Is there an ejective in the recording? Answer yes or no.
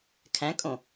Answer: yes